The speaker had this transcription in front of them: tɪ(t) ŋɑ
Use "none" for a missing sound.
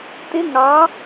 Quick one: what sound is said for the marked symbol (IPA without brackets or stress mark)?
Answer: none